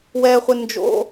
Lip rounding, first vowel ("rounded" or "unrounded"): unrounded